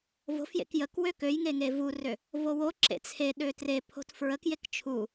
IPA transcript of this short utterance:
v o̤ f j ḛ k j ə k w ø k ø j ŋ e ŋ e v u r ø | v o w o ǁ ḛ t͡sʰ e ɗ ø t r e pʰ o̤ t f ɹ ə k j e k t͡ʃʰ u

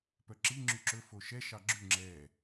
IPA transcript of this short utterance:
p œ ǁ i ŋ͡ǁ y ǁ ɵ f o ʃ ɛ ʃ ɑ ɡ͡ǁ ʉ ŋ͡ǁ ɛ

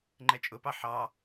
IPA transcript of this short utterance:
ŋ͡ǃ ɛ t͡ʃʼ ʊ p ɑ ħ ɑ

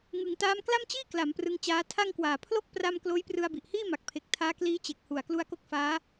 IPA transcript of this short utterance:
ŋ ɯ˩˦ ŋ t aː˦˥ m k l a˥˩ m t͡ɕ iː˥˩ k l a˩˦ m p r ɯ˧ ŋ t͡ɕ aː˦˥ tʰ a˥˩ ŋ k w aː˨˩ pʰ l o˥˩ k̚ p r a˥˩ m k l oː˦˥ j p r ɯ˧ a̯ b i˨˩ ʔ h iː˥˩ m a˨˩ k̚ pʰ e˨˩ k̚ tʰ aː˦˥ k l iː˦˥ t͡ɕ e˨˩ k̚ h u˨˩ a̯ k l u˧ a̯ k o˦˥ k̚ f aː˦˥

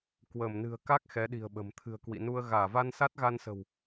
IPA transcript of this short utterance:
k w əː˧˩ m n ɨ̤˨˩ ə̯ k a˦˥ k̚ x ɛ˨˦ ɗ i̤˨˩ ə̯ ɓ ə̤˨˩ m t̪ʰ ɨ̤˨˩ ə̯ k w ḭ˧˨ n u˧ ə̯ ɣ aː˧˩ v a˧ n s a˦˥ t̚ ɣ a˧ n s ə̤˨˩ w

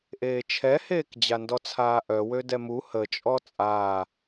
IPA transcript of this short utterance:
ʔ eː t͡ʃʰ ɛ h eː k d͡ʑ a n d ɔ t͡sʰ aː ʔ œ w ø d ɛ m u h ə t͡ʃʼ ɔ t͡sʼ aː

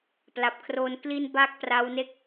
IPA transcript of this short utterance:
p l a˨˩ p̚ kʰ r o˧ n k l i˧ n b a˥˩ k̚ p r a˦˥ w n e˥˩ k̚

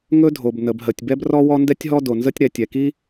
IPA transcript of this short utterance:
ŋ ɵ˥ dʱ o˩ b n ə˩ b ɦ ə˩ tʲ b ɛ˥ b r ɔ˥ w ɔ˥ n d ɛ˥ tʲ ɦ ɔ˥ d o˩ n z ə˥ tʲ ɾ ɛ˩ tʲ ɛ˩ k i˥

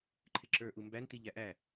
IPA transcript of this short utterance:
ǃʰ ɪ ǁ ə˞ ʔ u m b æ n t i ʎ æ ʔ æ

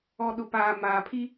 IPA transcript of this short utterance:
ɔ˨ ɗ ʊ˨ p aː˨ m aː˨ pʰ i˦

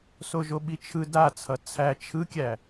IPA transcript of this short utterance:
s o ʒ o ɓ i t͡ʃʰ ɯ d a t͡sʰ ʌ t͡sʰ æ t͡ʃʰ ɯ kʲ æ

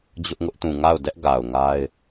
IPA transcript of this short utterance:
d͡ʑ ʊ˦ ʔ ŋ ʊ˦ ʔ t ũ˨ ŋ a˦˨ ʊ̯ d ɛ˦ ʔ ɡ a˨ ʊ̯ ŋ a˦ ɪ̯

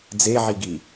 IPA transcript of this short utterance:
d͡z e ʕ i ɡ i

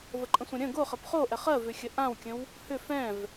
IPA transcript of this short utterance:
v ə ǃʼ ə̃ sʷ ə̃ ɾʲ ə̃ ɡ o χ ə p χ o ʔ ɛ χ ɜ v ʏ xʲ ə ʔ ã w kʲ ə̃ w | h ʏ f ɛ̃ v

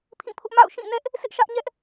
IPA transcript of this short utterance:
pʰ ĩ˦˨ pʰ ʊ˦ ʔ m a̰˦˨ ʊ̯ ʃ ĩ˦˨ n ɛ˦ ʔ | s ɪ˦ ʔ ʃ ä˦ ʔ ɲ ɛ˦ ʔ

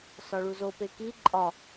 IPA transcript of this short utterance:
s ɒ ɭ u z o p e k i ǃʼ ɒ

